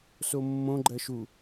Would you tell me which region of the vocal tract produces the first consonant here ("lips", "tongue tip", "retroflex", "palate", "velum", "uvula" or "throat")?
tongue tip